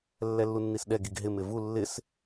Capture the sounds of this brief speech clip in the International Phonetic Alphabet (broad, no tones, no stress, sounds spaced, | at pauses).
lː ɛ lː u nː i s ɗ ɛ ɡ i ɡ ɦ ɪ m ɪ v u lː ɪ s